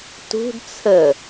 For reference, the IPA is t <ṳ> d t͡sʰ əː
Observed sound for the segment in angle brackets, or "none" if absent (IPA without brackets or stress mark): ṳ